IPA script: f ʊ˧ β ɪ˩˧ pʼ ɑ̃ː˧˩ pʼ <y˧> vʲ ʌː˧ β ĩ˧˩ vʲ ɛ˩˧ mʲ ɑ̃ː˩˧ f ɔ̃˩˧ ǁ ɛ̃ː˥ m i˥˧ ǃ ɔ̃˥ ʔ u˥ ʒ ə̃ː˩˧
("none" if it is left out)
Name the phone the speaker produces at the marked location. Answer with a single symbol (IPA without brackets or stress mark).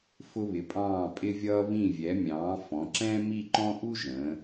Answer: ɪ˧